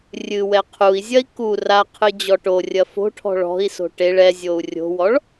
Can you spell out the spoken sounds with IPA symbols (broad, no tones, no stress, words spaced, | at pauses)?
rʲɨ wɛqʰui̯zʲɐi̯ ku raqʰɨ d͡ʑɔʈorʲɐ fo̤ʈʰɔ̤ ɭɔ̤i̯so̤ ʈeɭ ɛzʲou̯ rʲo̤wɔɭ